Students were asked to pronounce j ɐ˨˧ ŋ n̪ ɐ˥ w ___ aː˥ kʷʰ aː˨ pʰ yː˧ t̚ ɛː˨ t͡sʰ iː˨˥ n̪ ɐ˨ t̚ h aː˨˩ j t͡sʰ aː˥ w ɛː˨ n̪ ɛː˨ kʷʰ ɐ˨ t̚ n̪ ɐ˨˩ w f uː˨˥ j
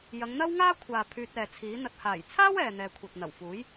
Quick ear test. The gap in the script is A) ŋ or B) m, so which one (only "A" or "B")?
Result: A